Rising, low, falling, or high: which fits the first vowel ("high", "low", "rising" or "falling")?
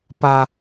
low